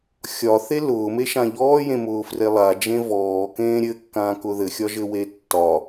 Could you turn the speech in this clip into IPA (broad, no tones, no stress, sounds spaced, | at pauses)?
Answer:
xʲ ɒ θ e l ʊː m e ʃ ã ʎ ɔː j ẽ m ʊː f r e lˠ a d͡ʒ ẽ v ɔː k ẽː ɾʲ ɘ kː ãː k ʊ ð ɘ xʲ ɒ ʒ ɘ w e tː ɒ